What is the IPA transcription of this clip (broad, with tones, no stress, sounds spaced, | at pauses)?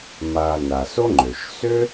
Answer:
m a˨ n a˩ s o˥ ŋ͡ǃ ø˩ ʃ s ø˥